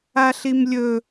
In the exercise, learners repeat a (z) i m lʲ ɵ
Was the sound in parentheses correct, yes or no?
no